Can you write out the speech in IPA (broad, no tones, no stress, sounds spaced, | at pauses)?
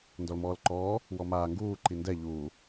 n d ɔ l m ɔː l ǃ ɔː | w ɔ m aː ŋ ɡ uː ǃ i n d ɛ ʎ uː